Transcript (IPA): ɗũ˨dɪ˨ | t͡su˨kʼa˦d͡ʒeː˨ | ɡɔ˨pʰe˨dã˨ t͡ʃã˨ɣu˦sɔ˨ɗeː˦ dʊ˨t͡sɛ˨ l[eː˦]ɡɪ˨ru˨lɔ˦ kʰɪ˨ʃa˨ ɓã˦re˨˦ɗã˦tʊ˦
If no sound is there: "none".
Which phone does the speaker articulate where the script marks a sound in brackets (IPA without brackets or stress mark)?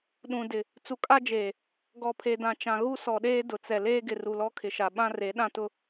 eː˦